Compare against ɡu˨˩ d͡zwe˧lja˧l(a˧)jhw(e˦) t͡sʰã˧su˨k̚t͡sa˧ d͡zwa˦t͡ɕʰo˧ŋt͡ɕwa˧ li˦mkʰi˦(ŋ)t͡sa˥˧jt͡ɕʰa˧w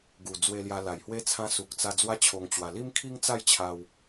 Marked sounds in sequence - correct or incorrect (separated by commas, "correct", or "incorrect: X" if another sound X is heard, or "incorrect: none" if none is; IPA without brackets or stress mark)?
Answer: incorrect: a˨˩, correct, correct